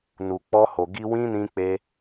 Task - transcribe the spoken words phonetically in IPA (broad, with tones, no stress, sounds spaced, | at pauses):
n u˨ k͡p ɔ˧ h o˨ ɡ i˧ w ĩ˦ n ĩ˧ k͡p e˧